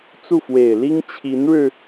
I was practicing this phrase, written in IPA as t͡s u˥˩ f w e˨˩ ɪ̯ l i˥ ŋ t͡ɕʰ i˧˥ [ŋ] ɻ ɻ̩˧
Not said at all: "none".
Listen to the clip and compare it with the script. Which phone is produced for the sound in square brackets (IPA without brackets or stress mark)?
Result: n